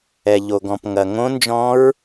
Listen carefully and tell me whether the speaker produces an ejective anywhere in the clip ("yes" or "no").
no